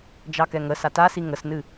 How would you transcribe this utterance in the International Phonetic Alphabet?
d͡ʒ ɑ k ɛ ŋ ə s a t a s i ŋ ə s n ɨ

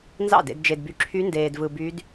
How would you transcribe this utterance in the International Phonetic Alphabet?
n z ɑ̰˥˩ d ḛ˧ d d͡ʒ e˧ d b y˧ ǁʰ y˦˥ n d eː˧ d v ɯ˧ b y˦˥ d

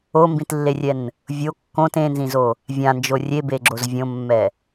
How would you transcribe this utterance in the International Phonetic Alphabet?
o m b ĩ t lː e rʲ ɛ n | vʲ o kː õ t ẽ n z ĩ z o | vʲ ã n d͡ʒ o rʲ e b e ɡ͡ǁ o z vʲ õ mː ɛ

